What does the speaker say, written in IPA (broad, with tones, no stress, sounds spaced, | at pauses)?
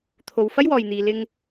t̪ʰ o˧ w f ɐ˥ j w ɔː˨ j n̪ iː˨ l ɪ˧ ŋ